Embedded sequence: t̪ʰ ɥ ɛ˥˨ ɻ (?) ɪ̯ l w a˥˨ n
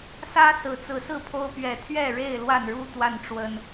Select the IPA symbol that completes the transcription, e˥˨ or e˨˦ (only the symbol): e˥˨